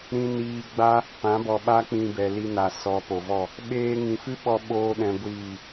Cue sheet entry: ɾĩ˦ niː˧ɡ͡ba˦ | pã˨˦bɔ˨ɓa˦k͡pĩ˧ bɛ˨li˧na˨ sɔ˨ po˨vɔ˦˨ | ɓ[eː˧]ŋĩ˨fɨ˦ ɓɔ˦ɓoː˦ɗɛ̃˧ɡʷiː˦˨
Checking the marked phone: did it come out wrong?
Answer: no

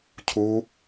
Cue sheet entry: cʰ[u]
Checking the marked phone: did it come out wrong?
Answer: no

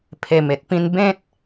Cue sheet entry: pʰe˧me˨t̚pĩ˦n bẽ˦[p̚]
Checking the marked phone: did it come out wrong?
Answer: yes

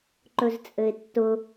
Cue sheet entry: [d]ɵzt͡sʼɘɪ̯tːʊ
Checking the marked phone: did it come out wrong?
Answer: yes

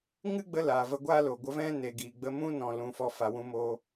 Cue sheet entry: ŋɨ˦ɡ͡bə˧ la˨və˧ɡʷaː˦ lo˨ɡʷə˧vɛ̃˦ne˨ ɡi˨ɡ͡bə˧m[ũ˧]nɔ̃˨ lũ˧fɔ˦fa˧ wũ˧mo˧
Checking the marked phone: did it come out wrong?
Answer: yes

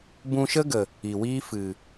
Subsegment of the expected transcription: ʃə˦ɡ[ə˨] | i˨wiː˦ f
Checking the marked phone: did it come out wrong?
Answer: no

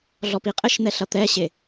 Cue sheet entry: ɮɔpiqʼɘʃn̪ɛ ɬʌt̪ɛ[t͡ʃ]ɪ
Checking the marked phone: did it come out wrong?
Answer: yes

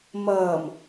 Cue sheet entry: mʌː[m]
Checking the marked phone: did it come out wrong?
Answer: no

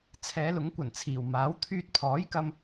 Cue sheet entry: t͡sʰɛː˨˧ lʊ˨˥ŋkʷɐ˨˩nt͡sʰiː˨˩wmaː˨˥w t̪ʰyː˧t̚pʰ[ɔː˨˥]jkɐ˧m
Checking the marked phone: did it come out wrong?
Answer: no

